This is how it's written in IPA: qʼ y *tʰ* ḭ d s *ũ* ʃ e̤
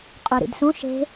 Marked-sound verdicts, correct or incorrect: incorrect: ɾ, correct

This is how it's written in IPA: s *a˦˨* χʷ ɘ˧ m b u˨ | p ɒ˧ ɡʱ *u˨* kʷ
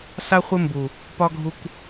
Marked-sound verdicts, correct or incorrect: incorrect: a˧, incorrect: u˧

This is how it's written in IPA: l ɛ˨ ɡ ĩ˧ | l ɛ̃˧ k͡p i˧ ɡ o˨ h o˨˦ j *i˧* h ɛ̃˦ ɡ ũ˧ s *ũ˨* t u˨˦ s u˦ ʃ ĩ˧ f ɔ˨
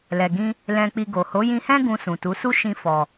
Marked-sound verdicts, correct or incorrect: incorrect: ĩ˧, correct

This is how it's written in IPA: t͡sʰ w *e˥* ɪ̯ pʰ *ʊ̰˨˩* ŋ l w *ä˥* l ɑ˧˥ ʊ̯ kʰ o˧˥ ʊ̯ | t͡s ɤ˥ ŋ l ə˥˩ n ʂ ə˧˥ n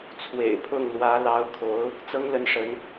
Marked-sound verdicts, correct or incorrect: incorrect: ḛ˨˩, incorrect: ʊ˥˩, incorrect: ä˧˥

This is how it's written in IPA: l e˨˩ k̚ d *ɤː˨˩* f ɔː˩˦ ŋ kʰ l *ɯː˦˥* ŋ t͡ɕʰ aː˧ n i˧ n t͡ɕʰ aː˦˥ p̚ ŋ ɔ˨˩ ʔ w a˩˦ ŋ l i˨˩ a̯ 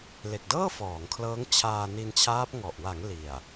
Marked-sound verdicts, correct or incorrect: incorrect: ɤː˥˩, incorrect: ɤː˦˥

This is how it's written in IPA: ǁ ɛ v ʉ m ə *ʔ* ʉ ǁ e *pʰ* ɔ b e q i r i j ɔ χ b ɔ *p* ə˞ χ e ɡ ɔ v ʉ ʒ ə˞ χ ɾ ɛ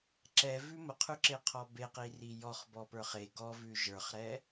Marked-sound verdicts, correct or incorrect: incorrect: qʰ, incorrect: qʰ, correct

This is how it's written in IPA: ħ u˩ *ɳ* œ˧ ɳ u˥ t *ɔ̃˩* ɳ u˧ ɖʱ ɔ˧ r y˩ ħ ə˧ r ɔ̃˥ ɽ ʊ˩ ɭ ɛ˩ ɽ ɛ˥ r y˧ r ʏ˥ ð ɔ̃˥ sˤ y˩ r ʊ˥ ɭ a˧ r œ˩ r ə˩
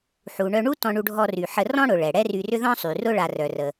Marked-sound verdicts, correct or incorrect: correct, incorrect: ɔ̃˧

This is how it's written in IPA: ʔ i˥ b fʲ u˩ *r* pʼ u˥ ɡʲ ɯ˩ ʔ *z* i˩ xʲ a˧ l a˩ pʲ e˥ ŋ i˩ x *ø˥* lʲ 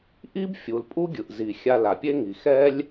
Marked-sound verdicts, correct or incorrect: incorrect: l, correct, incorrect: ɛ˥

